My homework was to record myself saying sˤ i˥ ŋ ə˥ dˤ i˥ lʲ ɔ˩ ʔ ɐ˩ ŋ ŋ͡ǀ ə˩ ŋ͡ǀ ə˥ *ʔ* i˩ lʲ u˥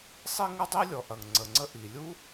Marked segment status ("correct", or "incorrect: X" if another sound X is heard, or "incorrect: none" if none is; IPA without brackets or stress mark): correct